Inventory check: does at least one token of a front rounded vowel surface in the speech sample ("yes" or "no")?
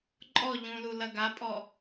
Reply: no